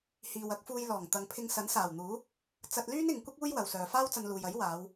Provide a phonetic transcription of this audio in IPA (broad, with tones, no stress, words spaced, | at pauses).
hiː˨wɐ˨˥k̚fuː˧jlɔː˨˩ŋ t̪ɐ˨ŋpʰɪ˧ŋsɐ˨˥n saː˨˩wn̪uː˨˥ | t͡sɐ˧t̚lyː˥nɪ˨˧ŋkʷɐ˥k̚ uː˥jwɐ˨wsœː˨ faː˥wt͡sɐ˧nluː˨jɐ˨˥j waː˨˧w